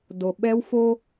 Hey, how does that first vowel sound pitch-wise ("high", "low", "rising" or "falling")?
low